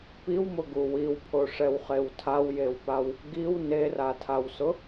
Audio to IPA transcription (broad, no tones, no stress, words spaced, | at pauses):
piwmʊɡu wiwpʰoʂɛwχew tʰawjewpaw | ɡiw neratʰawsʊ